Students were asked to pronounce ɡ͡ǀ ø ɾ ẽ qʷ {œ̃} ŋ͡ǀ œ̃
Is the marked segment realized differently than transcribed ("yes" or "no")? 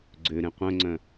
no